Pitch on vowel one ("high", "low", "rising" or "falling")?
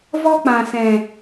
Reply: high